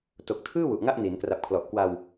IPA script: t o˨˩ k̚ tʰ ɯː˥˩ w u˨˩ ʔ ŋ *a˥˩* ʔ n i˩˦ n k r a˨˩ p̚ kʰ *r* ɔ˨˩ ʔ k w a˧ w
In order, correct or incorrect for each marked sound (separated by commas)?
correct, incorrect